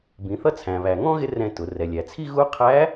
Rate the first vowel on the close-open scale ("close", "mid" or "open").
close